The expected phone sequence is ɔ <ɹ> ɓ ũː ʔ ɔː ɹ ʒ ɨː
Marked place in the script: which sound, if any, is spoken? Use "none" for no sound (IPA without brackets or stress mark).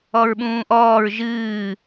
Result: ɹ